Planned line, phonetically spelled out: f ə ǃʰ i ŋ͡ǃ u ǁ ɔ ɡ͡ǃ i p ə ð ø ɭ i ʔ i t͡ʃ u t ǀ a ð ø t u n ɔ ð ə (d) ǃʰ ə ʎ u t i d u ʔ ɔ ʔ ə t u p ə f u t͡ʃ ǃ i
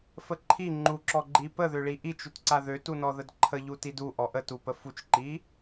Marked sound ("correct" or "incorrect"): correct